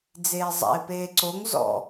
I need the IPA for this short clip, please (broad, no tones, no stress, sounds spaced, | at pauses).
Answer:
d͡z eː zˤ a̰ ɪ̯ p eː ǀ o ŋ z ɔ̰